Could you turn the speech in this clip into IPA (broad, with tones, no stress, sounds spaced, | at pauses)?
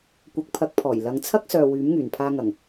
kʷ ɐ˨˥ k̚ pʰ ɐ˨˥ k̚ pʰ ɔː˨˩ j l ɐ˨˧ ŋ t͡sʰ ɐ˥ k̚ s œː˨ w yː˨˥ m ŋ yː˨˩ n pʰ aː˧ ŋ ɐ˨˩ ŋ